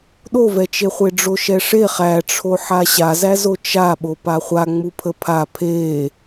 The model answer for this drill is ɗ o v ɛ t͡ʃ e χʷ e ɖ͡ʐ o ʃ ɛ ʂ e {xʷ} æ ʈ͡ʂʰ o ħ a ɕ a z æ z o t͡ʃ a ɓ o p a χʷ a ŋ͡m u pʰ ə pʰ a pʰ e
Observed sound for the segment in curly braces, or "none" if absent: χ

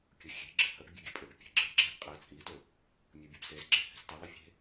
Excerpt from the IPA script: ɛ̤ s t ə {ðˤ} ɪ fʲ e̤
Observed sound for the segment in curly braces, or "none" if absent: ðˤ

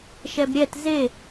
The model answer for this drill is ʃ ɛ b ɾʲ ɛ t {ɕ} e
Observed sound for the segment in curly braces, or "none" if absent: z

